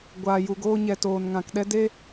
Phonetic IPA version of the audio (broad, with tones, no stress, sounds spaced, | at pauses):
ɡʷ aː˨ j u˨ ɡ oː˧ ɲ ɛ˨ t oː˨ n ŋ ã˨ k ɗ ɛ˦ d e˦